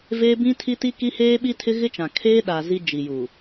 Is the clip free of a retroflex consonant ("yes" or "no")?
yes